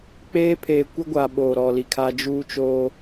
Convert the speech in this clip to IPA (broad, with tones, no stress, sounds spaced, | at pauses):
k͡p eː˦ pʰ eː˨ kʷ ɪ˦ ɡʷ a˨ ɓ oː˨ ɾ ɔ˨ l i˨ kʰ a˦ d͡ʒ uː˦ t͡ʃ oː˦